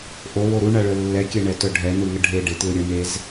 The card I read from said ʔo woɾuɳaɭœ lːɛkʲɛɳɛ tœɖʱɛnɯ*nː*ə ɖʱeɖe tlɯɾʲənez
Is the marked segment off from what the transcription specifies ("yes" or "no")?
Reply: yes